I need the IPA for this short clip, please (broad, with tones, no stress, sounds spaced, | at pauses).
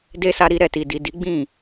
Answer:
d e˦ s a˧ ɾ i˧ ɾ ɛ˨ t i˨ d i˨ d i˨˦ ɡ͡b ĩ˦˨